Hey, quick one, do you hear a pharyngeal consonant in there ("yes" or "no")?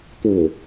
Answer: no